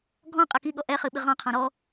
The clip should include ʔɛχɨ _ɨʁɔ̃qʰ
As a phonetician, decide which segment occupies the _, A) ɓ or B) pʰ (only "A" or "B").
A